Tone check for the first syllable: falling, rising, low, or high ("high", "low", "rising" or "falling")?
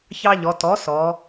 high